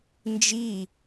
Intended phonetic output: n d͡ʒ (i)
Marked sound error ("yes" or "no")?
no